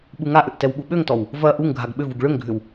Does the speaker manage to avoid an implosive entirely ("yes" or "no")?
no